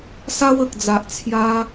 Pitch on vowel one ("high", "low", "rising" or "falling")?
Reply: high